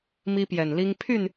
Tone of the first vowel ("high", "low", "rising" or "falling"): high